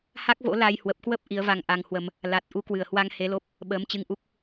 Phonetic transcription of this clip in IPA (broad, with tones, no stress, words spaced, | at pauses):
ha˦˥k̚vo̰˧˥ la˧j hwə˨˩p̚kwə˦˥p̚ ʔi˨˦ə̯va˧ŋʔa˧ŋhwə˧m | la˨˩t̚ ʔu˧kwɨ˧˩ə̯hwa˧ŋ he˨˦lo˦˥p̚ | ɓəː˨˦mt͡ɕɨ˧ŋʔu˦˥k̚